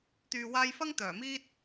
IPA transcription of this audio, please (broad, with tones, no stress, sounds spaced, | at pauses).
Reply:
t̪ yː˨ w aː˧ j f ɐ˥ ŋ t̪ œː˨˩ m iː˥ t̚